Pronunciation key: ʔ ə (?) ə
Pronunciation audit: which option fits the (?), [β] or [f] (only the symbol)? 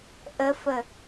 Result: f